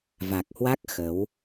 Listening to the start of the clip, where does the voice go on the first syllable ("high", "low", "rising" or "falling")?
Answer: low